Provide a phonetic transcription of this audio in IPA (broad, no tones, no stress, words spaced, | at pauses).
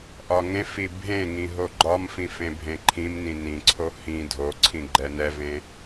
ʔɒŋẽfi bʱẽŋĩ ɦoɡ͡ǃɒmfĩf ẽbʱẽǃʰĩmnĩ nĩǀʰo hĩ dʱoǀʰĩ ɡ͡ǃɛnɛvẽ